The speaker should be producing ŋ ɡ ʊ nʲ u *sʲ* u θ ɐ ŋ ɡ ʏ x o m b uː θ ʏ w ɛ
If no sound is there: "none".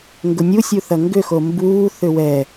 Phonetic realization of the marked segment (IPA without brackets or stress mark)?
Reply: sʲ